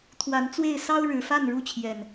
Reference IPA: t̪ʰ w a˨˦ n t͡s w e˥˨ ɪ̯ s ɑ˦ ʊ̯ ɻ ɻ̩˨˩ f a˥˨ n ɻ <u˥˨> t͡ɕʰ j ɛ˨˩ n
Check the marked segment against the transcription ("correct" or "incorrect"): correct